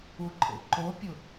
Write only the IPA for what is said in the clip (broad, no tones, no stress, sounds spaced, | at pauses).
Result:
u ǃʼ ḛ ǃ o pʲ ʊ